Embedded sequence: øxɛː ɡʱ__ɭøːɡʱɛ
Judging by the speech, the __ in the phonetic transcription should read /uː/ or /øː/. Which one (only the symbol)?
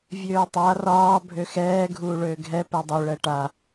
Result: uː